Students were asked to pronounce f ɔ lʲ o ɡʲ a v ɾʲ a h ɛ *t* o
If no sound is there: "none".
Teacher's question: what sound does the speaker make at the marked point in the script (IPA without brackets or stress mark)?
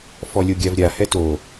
t